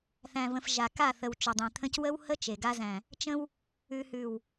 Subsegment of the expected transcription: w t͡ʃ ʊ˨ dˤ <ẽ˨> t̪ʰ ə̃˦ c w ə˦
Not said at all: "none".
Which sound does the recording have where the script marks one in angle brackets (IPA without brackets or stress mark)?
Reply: ẽ˨